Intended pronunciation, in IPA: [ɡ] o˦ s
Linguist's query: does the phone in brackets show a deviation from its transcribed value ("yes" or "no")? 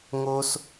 yes